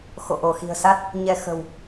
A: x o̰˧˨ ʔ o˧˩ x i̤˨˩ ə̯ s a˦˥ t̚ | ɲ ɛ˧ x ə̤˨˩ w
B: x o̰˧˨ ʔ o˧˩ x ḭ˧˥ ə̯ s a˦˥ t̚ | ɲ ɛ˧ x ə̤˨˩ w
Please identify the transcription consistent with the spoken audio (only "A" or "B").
A